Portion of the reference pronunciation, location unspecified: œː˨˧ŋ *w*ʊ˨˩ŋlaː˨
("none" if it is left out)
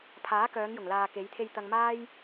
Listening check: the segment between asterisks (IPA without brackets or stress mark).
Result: j